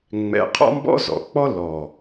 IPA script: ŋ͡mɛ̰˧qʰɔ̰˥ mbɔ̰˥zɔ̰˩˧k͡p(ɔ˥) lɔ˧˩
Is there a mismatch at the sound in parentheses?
no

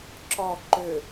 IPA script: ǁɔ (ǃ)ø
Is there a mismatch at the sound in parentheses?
no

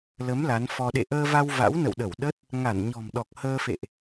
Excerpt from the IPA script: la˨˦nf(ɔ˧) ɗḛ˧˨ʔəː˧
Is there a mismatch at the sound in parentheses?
no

